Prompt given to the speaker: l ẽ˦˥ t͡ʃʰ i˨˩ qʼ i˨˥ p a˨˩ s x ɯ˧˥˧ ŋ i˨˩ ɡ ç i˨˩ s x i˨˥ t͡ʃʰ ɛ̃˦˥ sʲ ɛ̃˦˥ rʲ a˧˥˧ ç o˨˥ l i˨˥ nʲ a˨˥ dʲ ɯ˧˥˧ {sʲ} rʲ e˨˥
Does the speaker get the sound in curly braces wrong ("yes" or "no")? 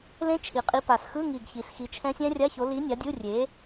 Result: yes